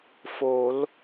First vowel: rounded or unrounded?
rounded